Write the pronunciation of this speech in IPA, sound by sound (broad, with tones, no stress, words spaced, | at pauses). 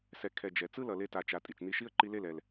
sɛ˨ kʰɛ˨d͡ʒɛ˨ t͡sɯ˦lʌ˨ le˧ta˨t͡ʃa˨ tʼi˨t͡ʃni˧ʃi˦ə̯ ǃi˧le˦˨l ɛ˨l